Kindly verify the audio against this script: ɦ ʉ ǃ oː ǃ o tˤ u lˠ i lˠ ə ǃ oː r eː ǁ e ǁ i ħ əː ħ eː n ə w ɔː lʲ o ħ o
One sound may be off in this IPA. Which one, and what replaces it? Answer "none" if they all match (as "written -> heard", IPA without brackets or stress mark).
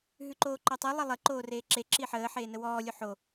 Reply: u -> ʉ